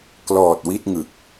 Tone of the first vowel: low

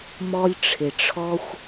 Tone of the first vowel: high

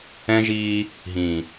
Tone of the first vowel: high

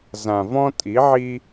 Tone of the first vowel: low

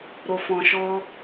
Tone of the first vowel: low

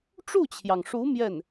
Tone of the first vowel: falling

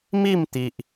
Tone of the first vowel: falling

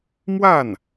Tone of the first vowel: falling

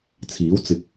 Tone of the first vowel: rising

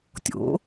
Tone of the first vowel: rising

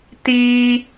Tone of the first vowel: high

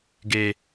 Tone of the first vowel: low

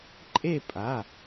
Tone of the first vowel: falling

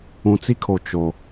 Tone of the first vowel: low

